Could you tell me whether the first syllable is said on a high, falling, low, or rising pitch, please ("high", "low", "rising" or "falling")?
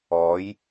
rising